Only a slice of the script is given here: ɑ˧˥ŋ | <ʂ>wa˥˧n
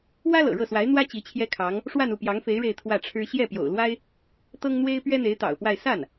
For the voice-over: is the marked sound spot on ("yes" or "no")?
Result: yes